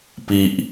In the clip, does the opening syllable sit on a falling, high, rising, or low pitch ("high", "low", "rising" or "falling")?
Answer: low